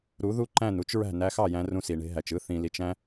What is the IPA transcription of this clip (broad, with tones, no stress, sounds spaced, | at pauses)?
ɾ u˨˦ ð u˦ ǃ æ̃˦˨ n u˦ t͡ʃ ɹ æ̤˦˨ n æ˧ x ɑ˦˨ j æ̃˧ r ũ˧ s i˨ ɳ e̤˧ ɦ æ˨ t͡ʃ ɯ˧ θ ĩ˨ l i˨ t͡ʃ æ̃˧